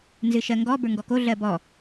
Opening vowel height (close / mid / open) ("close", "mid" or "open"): close